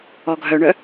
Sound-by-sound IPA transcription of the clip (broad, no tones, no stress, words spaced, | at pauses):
ɔɡʱœɳœ